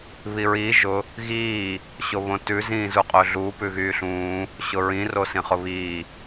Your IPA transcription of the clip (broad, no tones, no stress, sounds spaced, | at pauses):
β i ɹ iː ʒ ʊ | ɣ iː | ɕ o β õ t ʉ z ĩː z u qʼ ɵ ɮ u p ʉ ɣ yː ɬ ũː | ɕ ʊ ɹ ĩ r o s ĩ χ ʊ β iː